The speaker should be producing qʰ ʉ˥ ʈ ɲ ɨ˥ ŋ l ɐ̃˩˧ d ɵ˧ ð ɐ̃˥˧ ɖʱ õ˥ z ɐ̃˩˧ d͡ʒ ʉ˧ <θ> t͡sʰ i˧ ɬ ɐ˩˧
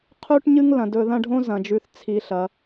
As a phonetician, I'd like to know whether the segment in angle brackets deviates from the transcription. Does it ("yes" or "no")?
no